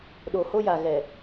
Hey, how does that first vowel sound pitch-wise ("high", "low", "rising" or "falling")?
low